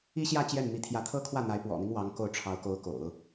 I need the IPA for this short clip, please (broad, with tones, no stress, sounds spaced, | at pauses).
i˥ ɕ j ä˥˧ t͡ɕ j ɛ˥˩ n m i˧˥ t̪ʰ j ä˧˥ t̪ʰ ɤ˥ kʰ w ä˥˩ n̪ a˧˥ ɪ̯ p w ɔ̰˨˩ n̪ i˦ ŋ w ɑ˧˥ ŋ k o˥˩ ʊ̯ ʈ͡ʂʰ ɑ˧˥ ʊ̯ k o˧˥ ʊ̯ k o̰˨˩˦ ʊ̯